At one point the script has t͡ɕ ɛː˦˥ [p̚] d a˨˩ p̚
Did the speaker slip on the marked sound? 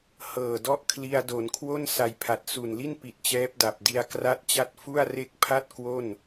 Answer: no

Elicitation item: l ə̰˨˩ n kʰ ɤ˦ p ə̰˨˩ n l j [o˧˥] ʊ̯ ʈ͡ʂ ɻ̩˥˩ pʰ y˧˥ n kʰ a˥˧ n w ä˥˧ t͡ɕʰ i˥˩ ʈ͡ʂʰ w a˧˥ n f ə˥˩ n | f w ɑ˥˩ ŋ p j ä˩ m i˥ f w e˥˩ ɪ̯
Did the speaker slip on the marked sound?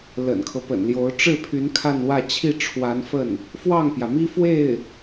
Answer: no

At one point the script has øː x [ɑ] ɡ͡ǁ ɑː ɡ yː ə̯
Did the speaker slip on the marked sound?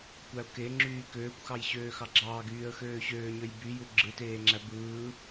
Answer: no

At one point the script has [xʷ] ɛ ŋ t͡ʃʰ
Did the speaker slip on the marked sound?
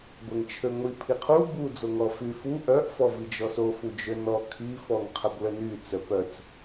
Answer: yes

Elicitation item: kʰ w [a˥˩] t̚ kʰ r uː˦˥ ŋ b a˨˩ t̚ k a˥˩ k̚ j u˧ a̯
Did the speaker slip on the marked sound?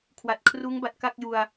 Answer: yes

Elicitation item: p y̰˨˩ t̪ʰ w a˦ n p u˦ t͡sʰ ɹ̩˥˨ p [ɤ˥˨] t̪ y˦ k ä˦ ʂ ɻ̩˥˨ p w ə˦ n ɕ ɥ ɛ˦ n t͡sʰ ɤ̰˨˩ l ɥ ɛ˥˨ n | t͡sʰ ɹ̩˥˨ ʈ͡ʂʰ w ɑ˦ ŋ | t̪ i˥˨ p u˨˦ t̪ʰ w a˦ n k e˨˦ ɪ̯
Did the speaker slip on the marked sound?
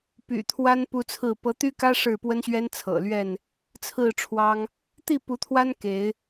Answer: yes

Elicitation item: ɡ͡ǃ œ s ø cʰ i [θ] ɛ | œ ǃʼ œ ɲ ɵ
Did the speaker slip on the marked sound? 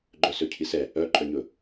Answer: yes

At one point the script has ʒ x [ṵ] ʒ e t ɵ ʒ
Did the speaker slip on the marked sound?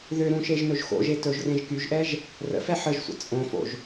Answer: yes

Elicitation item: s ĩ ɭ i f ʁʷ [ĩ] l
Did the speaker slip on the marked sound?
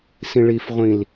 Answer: no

